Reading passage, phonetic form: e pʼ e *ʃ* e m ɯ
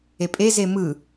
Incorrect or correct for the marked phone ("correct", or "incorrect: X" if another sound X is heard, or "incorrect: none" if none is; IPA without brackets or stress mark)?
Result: incorrect: z